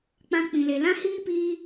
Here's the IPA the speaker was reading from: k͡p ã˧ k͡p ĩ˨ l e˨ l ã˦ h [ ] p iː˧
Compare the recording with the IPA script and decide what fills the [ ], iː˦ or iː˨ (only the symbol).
iː˦